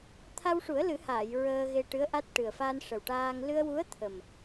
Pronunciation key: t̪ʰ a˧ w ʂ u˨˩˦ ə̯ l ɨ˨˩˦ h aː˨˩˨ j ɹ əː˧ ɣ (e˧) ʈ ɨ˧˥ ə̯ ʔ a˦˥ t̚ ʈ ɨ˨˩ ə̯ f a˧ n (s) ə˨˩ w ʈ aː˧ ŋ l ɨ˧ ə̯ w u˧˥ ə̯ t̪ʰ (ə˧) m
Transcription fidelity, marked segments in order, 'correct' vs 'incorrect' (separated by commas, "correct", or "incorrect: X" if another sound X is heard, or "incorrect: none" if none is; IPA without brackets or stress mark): correct, incorrect: ʂ, incorrect: ə˨˩